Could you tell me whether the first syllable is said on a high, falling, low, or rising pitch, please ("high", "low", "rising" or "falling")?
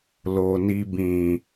low